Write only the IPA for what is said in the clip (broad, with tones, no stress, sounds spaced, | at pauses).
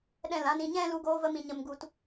ɗ ɛ̃˦˨ l ã˦ n ĩ˧ ɲ ɛ̃˦ l u˧ ɡ oː˧ v ə˧ m ĩ˨ ɲ ə˧ m ɡ u˧ t